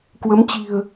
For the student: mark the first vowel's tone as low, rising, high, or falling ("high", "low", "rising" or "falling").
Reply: rising